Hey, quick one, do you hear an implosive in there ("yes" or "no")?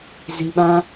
yes